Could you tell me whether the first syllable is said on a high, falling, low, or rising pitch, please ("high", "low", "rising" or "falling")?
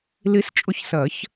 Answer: rising